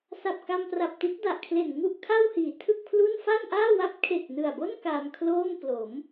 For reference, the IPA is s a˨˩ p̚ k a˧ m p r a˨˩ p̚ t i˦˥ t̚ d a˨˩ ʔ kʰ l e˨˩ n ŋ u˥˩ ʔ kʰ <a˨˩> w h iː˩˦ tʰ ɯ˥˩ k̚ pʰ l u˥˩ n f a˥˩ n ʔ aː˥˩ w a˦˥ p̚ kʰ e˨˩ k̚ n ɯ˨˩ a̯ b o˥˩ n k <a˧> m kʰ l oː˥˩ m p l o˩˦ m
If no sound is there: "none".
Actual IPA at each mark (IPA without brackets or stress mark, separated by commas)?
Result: a˥˩, aː˧